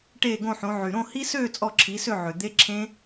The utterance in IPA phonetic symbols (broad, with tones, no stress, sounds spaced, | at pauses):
ʈ eː˥˨ ɡ õ˥˨ ħ õ˨˥ ʕ y˨˩ ɾ õ˥˨ h i˦˥ s øː˥˨ t͡sʼ ɔ˥˨ ǁʰ i˨˥ s ø˥˨ ʕ ø˨˩ d̪ e˦˥ ǁʰ ẽ˦˥